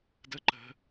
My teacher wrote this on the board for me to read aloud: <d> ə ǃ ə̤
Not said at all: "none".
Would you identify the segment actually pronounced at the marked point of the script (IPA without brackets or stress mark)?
d